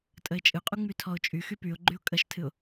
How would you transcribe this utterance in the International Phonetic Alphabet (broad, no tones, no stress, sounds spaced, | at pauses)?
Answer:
tʼ ə ɪ̯ t͡ʃʼ ɨ qʼ u ŋ͡m y tʰ ɔ ʊ̯ t͡ʃʼ y x y p y ʊ̯ ɡ͡ǃ y ʊ̯ kʼ ə ʃ tʰ ɨ ʊ̯